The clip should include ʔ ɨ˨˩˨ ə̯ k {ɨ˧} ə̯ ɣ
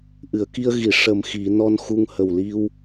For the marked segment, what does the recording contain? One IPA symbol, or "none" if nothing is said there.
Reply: i˧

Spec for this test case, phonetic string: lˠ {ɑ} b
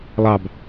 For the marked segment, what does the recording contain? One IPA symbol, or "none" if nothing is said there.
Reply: ɑ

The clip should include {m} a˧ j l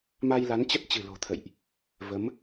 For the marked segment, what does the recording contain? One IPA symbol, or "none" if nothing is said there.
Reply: m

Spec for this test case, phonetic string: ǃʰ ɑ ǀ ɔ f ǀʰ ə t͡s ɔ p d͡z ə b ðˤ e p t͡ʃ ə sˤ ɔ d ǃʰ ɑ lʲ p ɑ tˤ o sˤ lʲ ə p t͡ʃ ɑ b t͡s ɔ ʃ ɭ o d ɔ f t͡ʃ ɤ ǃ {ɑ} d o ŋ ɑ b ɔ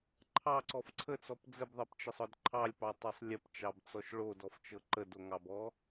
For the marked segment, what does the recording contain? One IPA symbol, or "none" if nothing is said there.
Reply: ə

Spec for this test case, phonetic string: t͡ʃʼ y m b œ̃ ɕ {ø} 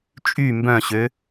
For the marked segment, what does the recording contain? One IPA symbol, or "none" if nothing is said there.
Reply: ø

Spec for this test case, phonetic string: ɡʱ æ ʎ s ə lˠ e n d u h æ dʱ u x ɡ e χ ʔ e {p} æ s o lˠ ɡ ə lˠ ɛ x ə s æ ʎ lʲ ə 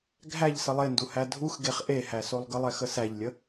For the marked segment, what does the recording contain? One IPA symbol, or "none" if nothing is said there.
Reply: h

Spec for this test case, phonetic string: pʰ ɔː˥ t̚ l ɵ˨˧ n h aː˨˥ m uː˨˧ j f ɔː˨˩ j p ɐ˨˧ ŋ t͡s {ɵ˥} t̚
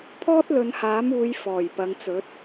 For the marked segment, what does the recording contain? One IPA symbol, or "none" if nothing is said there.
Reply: ɵ˨˥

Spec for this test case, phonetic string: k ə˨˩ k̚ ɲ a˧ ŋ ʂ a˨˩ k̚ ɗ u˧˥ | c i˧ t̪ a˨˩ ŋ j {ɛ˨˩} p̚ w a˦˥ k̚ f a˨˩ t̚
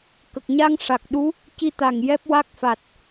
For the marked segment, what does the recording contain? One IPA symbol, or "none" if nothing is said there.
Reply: ɛ˦˥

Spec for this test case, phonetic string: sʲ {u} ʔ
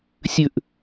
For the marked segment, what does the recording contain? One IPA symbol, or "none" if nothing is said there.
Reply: ʉ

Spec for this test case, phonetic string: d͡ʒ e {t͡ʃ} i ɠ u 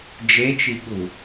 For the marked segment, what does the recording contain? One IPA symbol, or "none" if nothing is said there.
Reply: t͡ʃ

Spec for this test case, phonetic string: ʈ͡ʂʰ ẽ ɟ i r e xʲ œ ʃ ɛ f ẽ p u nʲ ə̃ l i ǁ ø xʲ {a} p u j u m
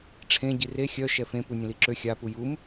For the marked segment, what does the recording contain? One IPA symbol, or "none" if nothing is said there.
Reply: a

